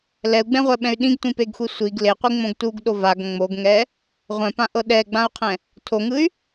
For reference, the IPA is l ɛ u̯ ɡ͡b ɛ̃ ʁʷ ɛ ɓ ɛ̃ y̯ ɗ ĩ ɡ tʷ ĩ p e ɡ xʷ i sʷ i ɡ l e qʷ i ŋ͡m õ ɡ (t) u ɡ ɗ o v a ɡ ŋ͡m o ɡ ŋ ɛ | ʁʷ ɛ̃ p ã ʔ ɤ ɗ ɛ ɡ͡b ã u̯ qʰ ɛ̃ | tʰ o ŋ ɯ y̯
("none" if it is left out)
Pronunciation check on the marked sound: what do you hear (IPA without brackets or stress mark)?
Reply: t